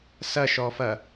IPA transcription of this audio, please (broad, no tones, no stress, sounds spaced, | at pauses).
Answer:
s ɐ ʃ ɔ f ɐ